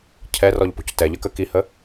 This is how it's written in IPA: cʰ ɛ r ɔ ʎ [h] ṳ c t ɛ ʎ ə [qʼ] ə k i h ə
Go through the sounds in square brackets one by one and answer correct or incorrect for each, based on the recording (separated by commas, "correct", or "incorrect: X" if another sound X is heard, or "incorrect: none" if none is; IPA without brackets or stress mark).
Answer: incorrect: p, incorrect: k